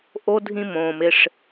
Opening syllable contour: high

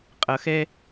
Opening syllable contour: low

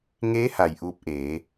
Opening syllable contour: rising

